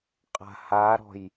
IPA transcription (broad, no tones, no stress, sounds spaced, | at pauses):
qʼ a̤ h a ɾ ɔ̤ j